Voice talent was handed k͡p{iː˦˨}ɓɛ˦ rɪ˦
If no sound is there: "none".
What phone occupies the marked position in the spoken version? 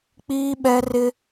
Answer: iː˦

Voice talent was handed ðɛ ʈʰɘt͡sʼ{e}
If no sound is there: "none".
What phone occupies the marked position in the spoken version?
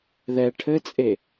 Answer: e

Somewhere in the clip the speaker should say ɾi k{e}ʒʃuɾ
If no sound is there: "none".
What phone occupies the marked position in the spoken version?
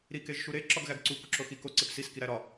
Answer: e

